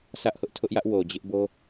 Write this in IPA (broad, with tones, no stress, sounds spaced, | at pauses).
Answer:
sʰ ä˦ ʔ h ʊ˦ ʔ tʰ ʊ˦ ʔ j ä˦ ʔ w o˨ d͡ʑ ɪ˦ ʔ b o˦